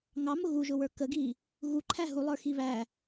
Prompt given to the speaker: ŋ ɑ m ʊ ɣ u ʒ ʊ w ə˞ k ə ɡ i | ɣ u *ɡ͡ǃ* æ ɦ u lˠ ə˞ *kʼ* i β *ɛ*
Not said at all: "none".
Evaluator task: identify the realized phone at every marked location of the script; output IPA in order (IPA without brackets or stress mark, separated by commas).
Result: ǃʰ, x, æ